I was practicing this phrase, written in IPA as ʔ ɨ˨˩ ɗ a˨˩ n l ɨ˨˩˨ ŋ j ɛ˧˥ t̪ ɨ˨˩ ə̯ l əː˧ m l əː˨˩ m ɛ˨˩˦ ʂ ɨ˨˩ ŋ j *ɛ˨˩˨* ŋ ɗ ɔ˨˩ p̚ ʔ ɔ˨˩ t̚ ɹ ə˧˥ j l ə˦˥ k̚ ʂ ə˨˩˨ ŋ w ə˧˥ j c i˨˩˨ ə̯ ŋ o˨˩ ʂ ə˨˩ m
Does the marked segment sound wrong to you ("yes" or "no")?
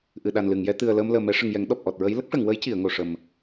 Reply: yes